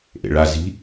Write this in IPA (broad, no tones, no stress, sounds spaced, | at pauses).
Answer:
ʔ ḛ ɭ a z i̤